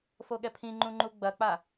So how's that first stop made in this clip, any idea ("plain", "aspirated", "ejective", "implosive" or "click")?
implosive